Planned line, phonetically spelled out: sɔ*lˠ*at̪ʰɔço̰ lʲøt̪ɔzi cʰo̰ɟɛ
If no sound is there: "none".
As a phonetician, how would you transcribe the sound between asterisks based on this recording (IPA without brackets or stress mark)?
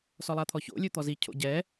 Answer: lˠ